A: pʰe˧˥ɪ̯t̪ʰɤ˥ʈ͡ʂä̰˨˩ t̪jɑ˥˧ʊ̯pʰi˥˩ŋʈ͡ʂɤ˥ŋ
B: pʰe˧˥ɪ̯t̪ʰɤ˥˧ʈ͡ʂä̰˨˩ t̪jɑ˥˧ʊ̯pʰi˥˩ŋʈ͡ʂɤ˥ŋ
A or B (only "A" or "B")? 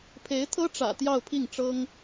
A